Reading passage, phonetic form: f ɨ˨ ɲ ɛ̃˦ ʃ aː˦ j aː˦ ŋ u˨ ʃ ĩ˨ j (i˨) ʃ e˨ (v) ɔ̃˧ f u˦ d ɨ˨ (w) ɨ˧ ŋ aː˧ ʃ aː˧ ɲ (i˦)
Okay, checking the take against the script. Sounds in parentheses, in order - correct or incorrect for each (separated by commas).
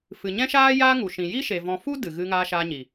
incorrect, correct, incorrect, incorrect